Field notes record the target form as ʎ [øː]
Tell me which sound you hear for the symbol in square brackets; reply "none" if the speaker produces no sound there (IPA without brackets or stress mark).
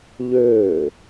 øː